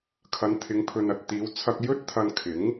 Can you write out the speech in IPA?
kʰ ɐ˨˧ n t̪ʰ ɪ˨˧ ŋ pʰ ɵ˨ n ɐ˨ t̚ t̪ iː˨˧ w t͡sʰ ɐ˧ k̚ j ɵ˥ t̚ t̪ʰ ɐ˧ n kʰ ɪ˨˥ ŋ

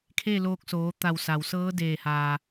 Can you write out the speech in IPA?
kʰ e˥˨ l oː˧ k̚ s oː˩˧ t̪ a˧˩ w s a˩ w s ɤː˧˥ d eː˧˩ h aː˩

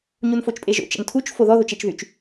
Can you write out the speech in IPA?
ɲ u n f o t͡ʃ pʼ e ʒ o̰ t͡ʃ ə̰ n tʰ u t͡ʃ f o ð ɔ ð o t͡ʃ e t͡ʃ ð y t͡ʃ

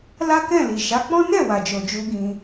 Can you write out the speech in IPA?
l a˦ k ɛ̃˦˨ l i˨ ʃ a˨˦ k͡p ɔ̃˦ n ɛ˦˨ w a˨ d͡ʒ o˨ d͡ʒ u˧ ɡ ĩ˧

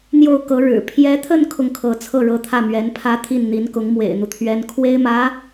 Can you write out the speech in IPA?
n̪ j o˥˩ ʊ̯ k ɤ˧˥ ɻ ɻ̩˨˩ pʰ j ɛ˧˥ t̪ʰ ə˥˧ n kʰ ʊ˥˩ ŋ kʰ ɤ˧˥ t͡sʰ ɤ˥˩ ɻ ɤ˧˥ t̪ʰ ä˥˩ m ɥ ɛ˧˥ n pʰ ä˥ t̪ʰ i˥˩ n n̪ i˧˥ n k ʊ˧˥ ŋ m w ḛ˨˩ ɪ̯ n̪ u˦ t̪ʰ ɥ ɛ˧˥ n kʰ w e˥ ɪ̯ m ä˧˥

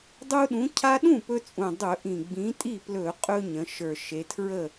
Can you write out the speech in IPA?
dˤ u˦ ɗ ũ˨˥ cʰ a˦ ɗ ũ˥˩ p ɵ˦ t͡sʼ ũ˨˩ dˤ ɵ˧˩˧ ʔ ĩ˨˩ ɡ͡b ĩ˨˥ tʼ i˥˩ p l ɵ˧˩˧ qʼ ɵ˦ ɲ ə̃˩˧ ʃ ə˞˨˩ ʃ e˩˧ tʰ ɹ ə˥˩

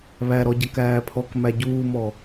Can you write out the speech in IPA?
β æ ɾ ɔ ɟ ɜ k æː pʰ ɔ k m æ ɟ uː m ɔ

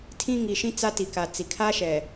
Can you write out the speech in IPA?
tʰ ĩ˦ ŋ i˨ ʃ ĩ˦ t͡s a˦ t i˨ k a˨ t͡s i˨ kʰ a˦ ʃ ɛ˨

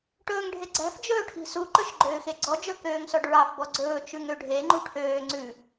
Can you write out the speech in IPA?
ʈ ɵː ŋ ɖʱ e ɡ͡ǀ æ̤ f d͡ʒ ɵː ʈʰ i̤ s u ǃ ɵ ʃ ɡ͡ǃ øː x e ɡ͡ǀ ɔ d͡ʒ ɵ k øː ŋ s ɔ ɖ ɹ ɑ f b ɔ ɡ͡ǀ ɵː t͡ʃ ʉ ŋ ø ɖʱ e ŋ͡ǃ u ʈʰ øː ŋ͡ǀ ʉ

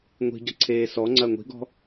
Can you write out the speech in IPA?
ŋʷ i̤ ɟ ɐ ǀʰ eː s ɔ ŋ͡ǀ ɐ ŋʷ i̤ ɡ ɔ̤

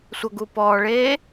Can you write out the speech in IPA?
sʷ ʌ ɡ u p ɔː ɭ eː

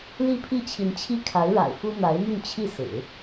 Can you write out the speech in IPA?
l i˥˧ pʰ i˥˩ t͡ɕʰ i˧˥ n t͡ɕʰ i˥ kʰ a˧˥ ɪ̯ ɻ a̰˨˩ ɪ̯ f u˥ n̪ a˧˥ ɪ̯ m y˥˧ n t͡ɕʰ i˥˩ s ɹ̩˨˩˦

